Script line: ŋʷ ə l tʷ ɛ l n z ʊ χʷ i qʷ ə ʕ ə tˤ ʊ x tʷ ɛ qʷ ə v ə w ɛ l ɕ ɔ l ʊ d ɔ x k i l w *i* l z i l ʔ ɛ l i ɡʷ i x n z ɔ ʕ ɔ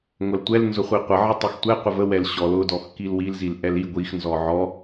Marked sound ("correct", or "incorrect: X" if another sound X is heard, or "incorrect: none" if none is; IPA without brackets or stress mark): correct